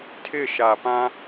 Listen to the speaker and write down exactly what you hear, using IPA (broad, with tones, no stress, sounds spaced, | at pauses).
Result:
tʰ ɪ˦˨ ʃ a˨ p ã˦